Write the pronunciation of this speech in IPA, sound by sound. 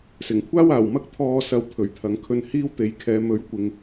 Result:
s ɪ˨˩ ŋ kʷʰ aː˥ w aː˨˩ w m ɐ˥ k̚ t̪ʰ ɔː˧ s ɐ˨˧ w t̪ʰ ɵ˨˩ ɥ t̪ʰ ɐ˨˧ ŋ kʰ ɵ˧ n h iː˥ w t̪ e˨ j kʰ ɛː˨˧ m ɵ˨˥ ɥ kʷ ɪ˨ ŋ

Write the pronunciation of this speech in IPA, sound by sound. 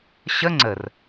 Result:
ɕ ə ŋ͡ǀ ə r

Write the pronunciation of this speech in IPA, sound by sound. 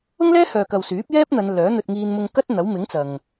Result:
ʊ˥ ŋ l ɛː˥ h œː˨ k ɐ˨ w s yː˨˥ p̚ j ɛː˥ p̚ n̪ ɐ˨˧ n l œː˨˥ n̪ ɵ˧ t̚ ŋ iː˧ n m ʊ˧ ŋ k ɐ˥ t̚ n̪ ɐ˨˥ w m ɪ˨˥ ŋ t͡s ɐ˨ ŋ

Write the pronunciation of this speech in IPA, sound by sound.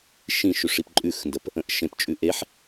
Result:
ʃ ĩ ʃ ʉ ʂ i p ǃʼ ʉ x n d ə p | ə̃ ʔ ʃ ẽ p t͡ʃʼ ʉ ʔ e ħ

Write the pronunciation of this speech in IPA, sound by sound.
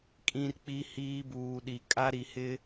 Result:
kʼ ĩ˦ r k͡p i˦ h iː˦ b uː˨ ɗ i˨ kʼ a˦ ɾ i˨ h ɪ˦

